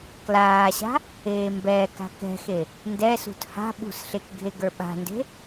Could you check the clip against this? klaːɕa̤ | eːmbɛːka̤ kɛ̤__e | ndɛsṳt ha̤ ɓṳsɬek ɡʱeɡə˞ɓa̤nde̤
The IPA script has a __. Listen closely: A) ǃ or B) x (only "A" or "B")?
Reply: B